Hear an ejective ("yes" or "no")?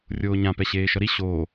no